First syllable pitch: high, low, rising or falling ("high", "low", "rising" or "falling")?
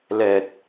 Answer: low